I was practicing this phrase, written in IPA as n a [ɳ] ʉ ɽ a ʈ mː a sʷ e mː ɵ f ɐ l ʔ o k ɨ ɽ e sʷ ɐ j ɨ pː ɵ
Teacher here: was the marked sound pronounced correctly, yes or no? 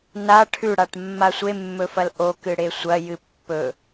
no